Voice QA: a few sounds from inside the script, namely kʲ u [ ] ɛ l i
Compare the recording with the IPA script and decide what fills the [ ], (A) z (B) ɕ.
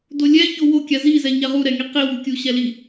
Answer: B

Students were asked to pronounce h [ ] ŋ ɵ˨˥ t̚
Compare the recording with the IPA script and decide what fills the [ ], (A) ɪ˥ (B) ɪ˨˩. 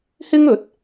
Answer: A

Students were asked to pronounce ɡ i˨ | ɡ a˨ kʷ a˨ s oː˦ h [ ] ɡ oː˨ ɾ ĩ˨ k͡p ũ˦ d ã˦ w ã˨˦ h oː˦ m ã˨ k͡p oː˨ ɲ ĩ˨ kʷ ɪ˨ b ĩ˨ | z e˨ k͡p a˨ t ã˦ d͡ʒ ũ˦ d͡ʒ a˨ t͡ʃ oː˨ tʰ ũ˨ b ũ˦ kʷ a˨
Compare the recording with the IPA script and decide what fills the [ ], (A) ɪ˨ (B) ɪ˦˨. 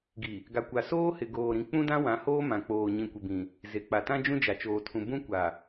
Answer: A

